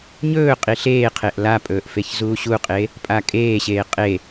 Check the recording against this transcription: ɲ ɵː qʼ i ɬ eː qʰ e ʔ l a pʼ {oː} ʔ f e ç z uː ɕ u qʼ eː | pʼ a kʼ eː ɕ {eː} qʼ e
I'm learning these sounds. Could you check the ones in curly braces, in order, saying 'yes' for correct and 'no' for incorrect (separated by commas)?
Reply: no, yes